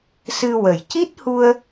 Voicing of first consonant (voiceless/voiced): voiceless